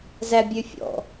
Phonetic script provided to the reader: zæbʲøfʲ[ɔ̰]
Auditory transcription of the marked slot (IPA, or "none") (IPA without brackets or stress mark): ɔ̰